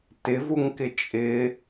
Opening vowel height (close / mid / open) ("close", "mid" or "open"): close